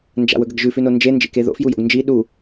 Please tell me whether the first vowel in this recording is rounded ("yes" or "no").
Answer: no